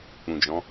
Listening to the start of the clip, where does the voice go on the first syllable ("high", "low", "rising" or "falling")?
low